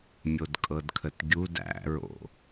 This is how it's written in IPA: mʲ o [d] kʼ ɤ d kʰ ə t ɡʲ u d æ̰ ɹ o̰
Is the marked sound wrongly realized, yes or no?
no